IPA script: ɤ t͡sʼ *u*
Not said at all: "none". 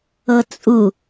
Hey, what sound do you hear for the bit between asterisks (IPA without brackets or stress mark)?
u